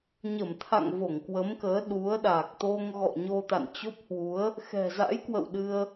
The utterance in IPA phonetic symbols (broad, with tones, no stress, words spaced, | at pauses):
ɲə˧˩mt̪ʰa̰˧˨ŋ vo˧˩ŋkwə˨˦mkəː˨˦ ɗu˨˦ə̯ɗa˨˩k̚ t̪o˧ŋɣɔ̰˧˨ɲo˧ t̪a̰˧˨nt͡ɕo˦˥p̚hwu˨˦ə̯ | xɛ̤˨˩za̰˧˥jkwə̰˧˨w ɗɨ˧ə̯